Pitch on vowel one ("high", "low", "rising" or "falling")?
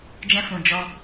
high